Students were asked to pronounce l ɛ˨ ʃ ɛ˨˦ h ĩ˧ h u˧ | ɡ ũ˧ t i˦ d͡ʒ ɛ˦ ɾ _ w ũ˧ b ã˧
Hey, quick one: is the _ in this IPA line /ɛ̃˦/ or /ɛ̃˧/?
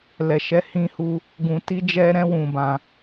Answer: ɛ̃˦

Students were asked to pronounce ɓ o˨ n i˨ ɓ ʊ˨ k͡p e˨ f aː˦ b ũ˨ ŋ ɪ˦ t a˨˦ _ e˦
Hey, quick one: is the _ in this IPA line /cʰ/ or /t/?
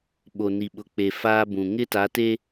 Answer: t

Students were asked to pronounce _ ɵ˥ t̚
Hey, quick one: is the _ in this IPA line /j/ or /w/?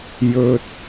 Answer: j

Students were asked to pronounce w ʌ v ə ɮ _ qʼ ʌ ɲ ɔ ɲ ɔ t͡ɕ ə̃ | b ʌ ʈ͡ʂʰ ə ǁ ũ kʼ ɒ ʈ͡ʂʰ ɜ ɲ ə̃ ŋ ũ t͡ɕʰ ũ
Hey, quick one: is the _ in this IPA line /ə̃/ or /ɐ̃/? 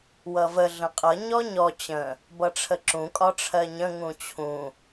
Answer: ə̃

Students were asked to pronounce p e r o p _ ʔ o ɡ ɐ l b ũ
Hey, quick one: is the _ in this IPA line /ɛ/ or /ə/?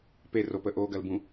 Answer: ə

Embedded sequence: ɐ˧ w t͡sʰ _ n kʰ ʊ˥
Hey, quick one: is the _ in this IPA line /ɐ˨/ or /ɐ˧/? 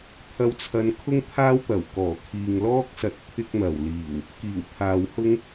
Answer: ɐ˧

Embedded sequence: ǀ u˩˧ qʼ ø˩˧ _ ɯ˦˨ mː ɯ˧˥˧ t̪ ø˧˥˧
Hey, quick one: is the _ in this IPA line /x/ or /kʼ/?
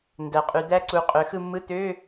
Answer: x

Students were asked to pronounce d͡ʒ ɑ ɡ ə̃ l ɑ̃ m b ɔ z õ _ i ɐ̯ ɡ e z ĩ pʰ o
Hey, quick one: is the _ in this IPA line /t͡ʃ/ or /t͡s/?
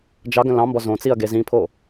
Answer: t͡s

